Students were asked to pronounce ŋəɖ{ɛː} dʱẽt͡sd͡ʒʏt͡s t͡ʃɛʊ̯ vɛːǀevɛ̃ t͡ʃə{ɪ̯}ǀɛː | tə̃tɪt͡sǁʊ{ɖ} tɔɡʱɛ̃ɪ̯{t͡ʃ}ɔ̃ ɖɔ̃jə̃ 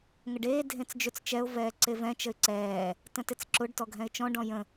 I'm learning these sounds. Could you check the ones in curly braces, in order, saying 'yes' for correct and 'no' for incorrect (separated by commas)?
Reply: no, yes, yes, yes